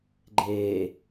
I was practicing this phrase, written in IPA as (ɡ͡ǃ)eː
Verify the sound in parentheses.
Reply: correct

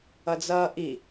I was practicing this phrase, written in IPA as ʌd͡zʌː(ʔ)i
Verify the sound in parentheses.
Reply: correct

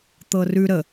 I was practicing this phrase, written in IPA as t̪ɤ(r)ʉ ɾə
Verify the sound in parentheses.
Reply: correct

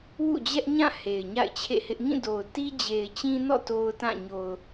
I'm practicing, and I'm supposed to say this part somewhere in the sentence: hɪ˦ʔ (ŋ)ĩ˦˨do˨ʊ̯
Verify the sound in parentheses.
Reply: correct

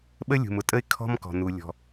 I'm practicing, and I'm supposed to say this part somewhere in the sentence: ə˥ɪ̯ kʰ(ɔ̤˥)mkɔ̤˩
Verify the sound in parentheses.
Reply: correct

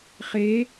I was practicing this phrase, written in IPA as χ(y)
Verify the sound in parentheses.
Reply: incorrect: e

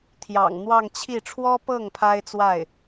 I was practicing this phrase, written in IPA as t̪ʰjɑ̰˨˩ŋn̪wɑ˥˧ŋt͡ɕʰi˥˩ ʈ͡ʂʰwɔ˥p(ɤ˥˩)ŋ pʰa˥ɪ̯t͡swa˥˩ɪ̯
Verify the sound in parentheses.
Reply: correct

